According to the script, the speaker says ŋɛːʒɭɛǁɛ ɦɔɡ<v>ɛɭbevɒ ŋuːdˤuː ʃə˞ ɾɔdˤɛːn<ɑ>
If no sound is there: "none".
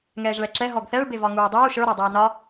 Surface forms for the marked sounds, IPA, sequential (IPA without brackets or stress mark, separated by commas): θ, ɒ